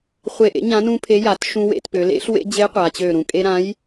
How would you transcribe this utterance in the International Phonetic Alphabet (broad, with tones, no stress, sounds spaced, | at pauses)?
χʷ e˧˩ ʔ ḛ˨˥ ɲ ã˨˥ n ũ˧ pʰ e˨˥ j a˩˧ t ʃ ũ˧ w ḛ˩˧ t p ø˩˧ l ḛ˨˥ ɬ w ḛ˧ d͡ʑ e˨˥ qʷ a˩˧ t͡ɕ ø˧˩ ɾ ũ˧˩ kʼ e˧ ɾ ã˨˥ j